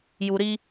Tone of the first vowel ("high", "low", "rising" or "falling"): low